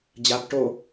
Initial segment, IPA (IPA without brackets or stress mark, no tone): d͡ʑ